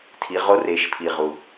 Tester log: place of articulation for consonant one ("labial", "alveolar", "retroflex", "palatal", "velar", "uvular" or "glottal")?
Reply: alveolar